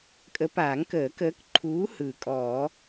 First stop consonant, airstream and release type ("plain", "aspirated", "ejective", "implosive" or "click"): ejective